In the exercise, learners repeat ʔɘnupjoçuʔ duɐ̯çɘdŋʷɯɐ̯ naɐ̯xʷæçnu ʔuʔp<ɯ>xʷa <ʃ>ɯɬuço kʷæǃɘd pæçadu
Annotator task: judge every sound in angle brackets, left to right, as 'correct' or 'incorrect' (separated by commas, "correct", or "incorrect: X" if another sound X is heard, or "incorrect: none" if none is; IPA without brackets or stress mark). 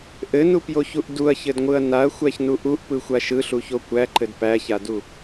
correct, correct